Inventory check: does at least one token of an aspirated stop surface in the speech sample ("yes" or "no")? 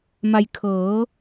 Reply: yes